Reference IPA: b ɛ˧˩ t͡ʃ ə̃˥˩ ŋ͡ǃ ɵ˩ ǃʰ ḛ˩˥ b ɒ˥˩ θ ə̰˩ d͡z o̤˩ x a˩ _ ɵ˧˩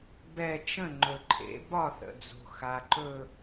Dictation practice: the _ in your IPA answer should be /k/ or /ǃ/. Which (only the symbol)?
ǃ